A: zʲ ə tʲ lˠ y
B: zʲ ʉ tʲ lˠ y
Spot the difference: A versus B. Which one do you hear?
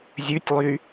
B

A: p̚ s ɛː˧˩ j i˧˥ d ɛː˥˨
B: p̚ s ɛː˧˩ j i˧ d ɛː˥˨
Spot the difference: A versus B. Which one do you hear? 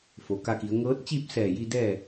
B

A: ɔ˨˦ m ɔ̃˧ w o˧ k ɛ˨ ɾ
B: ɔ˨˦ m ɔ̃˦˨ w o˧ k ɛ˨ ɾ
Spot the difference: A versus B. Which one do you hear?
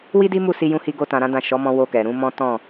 A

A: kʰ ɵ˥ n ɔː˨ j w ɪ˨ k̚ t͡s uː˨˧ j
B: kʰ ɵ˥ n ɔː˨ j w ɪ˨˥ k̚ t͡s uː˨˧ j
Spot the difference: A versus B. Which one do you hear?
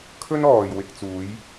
A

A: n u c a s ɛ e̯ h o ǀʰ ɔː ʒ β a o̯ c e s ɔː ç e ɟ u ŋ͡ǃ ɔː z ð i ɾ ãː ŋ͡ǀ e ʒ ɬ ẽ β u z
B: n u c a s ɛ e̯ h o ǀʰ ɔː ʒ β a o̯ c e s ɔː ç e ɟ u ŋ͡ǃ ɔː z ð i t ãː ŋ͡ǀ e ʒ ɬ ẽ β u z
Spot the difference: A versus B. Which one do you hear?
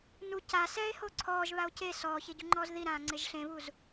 A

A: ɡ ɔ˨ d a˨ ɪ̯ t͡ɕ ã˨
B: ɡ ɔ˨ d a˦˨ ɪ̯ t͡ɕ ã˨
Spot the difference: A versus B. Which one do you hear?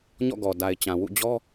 A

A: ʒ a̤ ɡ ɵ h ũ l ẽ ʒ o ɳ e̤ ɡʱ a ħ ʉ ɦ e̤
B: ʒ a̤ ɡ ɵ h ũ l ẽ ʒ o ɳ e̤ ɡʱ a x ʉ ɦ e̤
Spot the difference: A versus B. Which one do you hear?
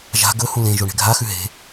B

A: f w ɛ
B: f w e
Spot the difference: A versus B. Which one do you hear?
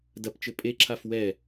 A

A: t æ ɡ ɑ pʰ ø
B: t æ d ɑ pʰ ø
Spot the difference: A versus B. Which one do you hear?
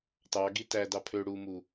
B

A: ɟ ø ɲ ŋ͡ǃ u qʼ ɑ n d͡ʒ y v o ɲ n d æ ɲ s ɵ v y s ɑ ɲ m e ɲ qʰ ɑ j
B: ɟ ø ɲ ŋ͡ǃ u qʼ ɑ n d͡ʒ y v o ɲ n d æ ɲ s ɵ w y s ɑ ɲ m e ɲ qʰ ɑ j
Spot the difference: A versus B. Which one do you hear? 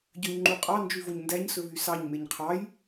A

